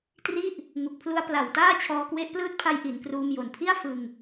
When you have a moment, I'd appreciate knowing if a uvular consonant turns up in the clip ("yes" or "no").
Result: no